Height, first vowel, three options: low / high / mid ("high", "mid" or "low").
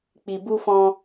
high